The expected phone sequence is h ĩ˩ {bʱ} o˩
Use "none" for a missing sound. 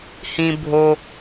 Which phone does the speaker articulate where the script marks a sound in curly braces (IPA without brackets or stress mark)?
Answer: bʱ